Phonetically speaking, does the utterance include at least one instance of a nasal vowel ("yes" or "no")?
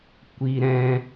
yes